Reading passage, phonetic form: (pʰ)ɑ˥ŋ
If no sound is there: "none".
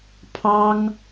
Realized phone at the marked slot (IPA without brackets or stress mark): pʰ